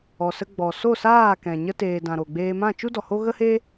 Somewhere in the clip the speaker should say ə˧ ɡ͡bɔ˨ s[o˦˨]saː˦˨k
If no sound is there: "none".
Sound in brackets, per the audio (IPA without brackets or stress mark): o˦˨